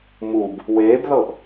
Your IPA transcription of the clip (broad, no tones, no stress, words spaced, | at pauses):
mub | weːbðɤʔ